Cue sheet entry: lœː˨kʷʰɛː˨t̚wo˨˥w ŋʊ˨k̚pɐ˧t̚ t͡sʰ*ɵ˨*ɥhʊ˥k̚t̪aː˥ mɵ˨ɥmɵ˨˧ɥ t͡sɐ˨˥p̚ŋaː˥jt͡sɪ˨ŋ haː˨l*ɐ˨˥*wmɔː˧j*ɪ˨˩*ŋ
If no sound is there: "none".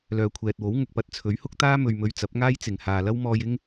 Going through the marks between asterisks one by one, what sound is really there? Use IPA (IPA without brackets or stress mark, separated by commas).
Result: ɵ˨˥, ɐ˥, ɪ˥